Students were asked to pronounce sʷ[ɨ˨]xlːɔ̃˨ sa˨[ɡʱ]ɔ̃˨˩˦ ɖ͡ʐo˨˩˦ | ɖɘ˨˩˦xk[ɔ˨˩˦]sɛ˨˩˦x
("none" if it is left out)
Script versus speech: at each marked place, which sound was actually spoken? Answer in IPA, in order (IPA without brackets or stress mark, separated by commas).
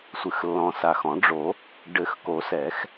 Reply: ɨ˨, x, o˨˩˦